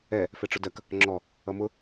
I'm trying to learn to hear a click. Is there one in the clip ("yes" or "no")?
yes